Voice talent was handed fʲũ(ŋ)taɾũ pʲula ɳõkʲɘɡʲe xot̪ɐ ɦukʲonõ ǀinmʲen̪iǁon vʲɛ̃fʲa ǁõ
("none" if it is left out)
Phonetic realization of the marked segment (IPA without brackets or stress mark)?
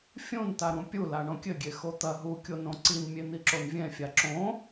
n